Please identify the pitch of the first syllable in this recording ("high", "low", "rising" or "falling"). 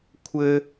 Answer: high